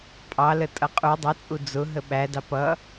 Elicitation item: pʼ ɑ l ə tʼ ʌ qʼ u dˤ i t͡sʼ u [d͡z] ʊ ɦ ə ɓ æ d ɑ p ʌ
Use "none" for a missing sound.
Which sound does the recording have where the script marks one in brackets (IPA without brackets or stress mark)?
d͡z